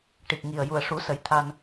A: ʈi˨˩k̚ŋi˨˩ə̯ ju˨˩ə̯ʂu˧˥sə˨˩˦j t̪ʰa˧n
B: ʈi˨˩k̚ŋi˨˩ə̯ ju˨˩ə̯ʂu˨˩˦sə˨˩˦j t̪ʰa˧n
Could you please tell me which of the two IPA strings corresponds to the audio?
B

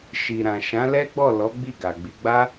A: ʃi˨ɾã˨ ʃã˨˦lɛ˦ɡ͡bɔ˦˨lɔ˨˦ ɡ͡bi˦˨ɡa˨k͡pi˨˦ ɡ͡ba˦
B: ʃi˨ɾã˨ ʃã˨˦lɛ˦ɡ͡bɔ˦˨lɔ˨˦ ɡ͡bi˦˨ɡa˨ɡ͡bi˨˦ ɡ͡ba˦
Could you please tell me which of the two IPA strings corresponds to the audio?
B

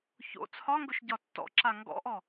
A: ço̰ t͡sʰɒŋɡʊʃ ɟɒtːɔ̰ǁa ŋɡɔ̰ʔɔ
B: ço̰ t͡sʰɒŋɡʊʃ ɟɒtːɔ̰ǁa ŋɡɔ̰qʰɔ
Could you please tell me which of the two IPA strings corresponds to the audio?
A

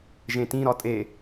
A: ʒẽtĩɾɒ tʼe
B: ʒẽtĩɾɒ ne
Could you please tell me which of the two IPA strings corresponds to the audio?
A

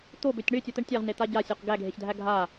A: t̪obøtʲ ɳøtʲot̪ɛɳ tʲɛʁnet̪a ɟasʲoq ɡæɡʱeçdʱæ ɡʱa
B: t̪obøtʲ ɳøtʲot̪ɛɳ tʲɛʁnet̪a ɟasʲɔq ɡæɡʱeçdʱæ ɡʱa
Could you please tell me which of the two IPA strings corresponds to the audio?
A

